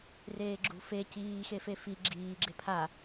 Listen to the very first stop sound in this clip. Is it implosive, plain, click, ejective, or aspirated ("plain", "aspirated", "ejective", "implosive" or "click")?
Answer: click